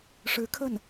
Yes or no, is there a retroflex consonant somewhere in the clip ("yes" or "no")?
yes